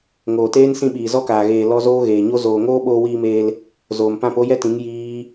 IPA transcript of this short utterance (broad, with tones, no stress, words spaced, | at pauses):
ŋoː˨teː˦nsĩ˧ɓiː˨ zɔ˦kaː˨ɣeː˨ lɔ˦ zoː˦ɣeː˨ɲo˦ zoː˨ŋoː˦ ɓoː˧wiː˧meː˧l | zoː˨m pã˦˨po˦jɛ˦tĩ˨˦ŋ jiː˦